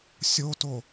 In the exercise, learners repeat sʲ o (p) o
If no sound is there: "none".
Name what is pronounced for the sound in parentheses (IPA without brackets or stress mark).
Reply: t